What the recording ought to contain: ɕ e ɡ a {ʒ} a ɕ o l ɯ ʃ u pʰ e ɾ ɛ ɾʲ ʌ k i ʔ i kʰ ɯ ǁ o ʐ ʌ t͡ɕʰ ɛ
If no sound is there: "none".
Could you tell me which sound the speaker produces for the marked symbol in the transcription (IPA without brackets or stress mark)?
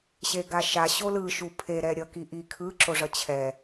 ʃ